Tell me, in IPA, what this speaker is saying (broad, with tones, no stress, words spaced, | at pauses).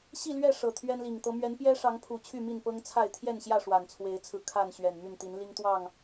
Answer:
ɕi˥˨lɥɛ˥˨ ʂɤ˨˩t̪ʰɥɛ˦nli˨˩ŋt̪ɤ˦ mɥɛ˨˦npjɛ˦ʂɑ˨˦ŋpʰu˨˩ t͡ɕʰy˥˨mi˥˨npɤ˦ŋt͡sʰa˥˨ɪ̯ t̪ʰjɛ˥˨nɕjä˥˨ ʂwa˨˩nt͡sʰwe˨˦ɪ̯t͡sʰɹ̩˧ kʰa˥˨n ɕɥɛ˨˩nmy˥˨nt̪i˨˦n li˦ŋt̪wɑ˥˨ŋ